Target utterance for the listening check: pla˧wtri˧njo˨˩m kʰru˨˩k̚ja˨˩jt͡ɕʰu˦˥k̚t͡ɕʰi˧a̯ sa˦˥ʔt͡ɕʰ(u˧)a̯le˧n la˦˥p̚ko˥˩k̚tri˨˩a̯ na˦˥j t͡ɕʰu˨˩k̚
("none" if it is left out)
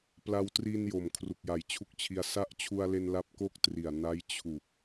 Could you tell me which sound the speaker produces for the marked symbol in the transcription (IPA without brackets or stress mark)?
u˧